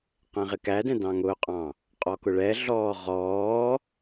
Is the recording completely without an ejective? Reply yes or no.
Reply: no